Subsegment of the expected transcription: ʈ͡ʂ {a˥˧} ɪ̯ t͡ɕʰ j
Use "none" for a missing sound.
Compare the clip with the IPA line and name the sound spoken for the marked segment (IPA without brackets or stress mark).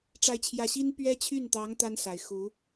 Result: a˥